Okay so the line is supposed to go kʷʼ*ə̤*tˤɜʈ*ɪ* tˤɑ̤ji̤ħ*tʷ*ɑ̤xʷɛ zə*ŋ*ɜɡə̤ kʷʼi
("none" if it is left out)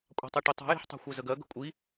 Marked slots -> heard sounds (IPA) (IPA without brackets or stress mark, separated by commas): ɑ̤, ɪ, tˤ, ɡ